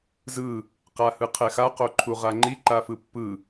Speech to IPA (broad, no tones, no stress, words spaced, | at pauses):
zɯ | qahɯqʰɛxa qoǃʰuʁaŋ͡ǃi ǃafɯpːɯ